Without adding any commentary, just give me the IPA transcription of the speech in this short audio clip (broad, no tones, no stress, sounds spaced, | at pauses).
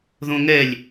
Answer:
ð õ ŋ ɛ lʲ